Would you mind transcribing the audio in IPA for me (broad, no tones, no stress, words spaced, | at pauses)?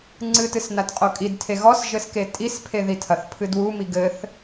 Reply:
ŋ͡ǀɨtɨs natqʼokʼidtʰe ɣɔsʒɘs ketʼispʰe ðitʰɐθpʰɨ dwumi ɡɘθ